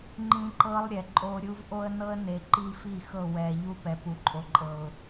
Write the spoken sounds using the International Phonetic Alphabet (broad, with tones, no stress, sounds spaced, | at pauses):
ŋ͡ǃ ĩ˦ ǃ ɤ˦ lˠ ɾʲ ɛ˨ ǃʼ o˦ ɾʲ u˦ v ʔ o˦ ə̯ n ɤ˦ ə̯ n e˨ ǃ i˦ f i˦˨ x ɤ˦˨ w ɛ˨ ʎ u˦ p ɛ˨ p u˨˦ ǃʼ o˨ ǃʼ ɤ˨ ʊ̯